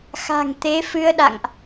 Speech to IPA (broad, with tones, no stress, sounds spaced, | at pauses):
x a̤˨˩ ŋ t̪ e˨˦ f ɨ˧ ə̯ ɗ a̰˧˨ ŋ ʔ